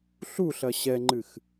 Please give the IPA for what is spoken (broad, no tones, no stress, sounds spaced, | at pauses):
ɬ u ɬ ɐ ɕ ɛ ŋ͡ǃ ɨ x